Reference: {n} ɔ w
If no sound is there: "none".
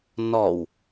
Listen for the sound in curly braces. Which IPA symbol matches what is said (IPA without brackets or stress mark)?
n